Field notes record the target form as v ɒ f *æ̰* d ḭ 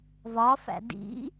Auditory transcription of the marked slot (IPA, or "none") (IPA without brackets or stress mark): æ̰